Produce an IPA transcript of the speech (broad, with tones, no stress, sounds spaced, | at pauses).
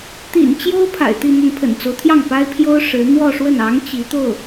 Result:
t̪ ḭ˨˩ n t͡ɕ j o˥ ʊ̯ pʰ a̰˨˩ ɪ̯ t̪ i˥˧ n̪ ə˥˩ n pʰ ə̰˨˩ n t͡s o˦ ʊ̯ t̪ʰ j ɑ˥˩ ŋ p a˥ ɪ̯ pʰ j o˥ ʊ̯ ʂ ɻ̩˧˥ n̪ w ɔ˥˧ ʂ w ə˥˩ n ɑ˧˥ ŋ t͡ɕ i˧˥ t̪ o˥˩ ʊ̯